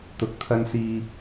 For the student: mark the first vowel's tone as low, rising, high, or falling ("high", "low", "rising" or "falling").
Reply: low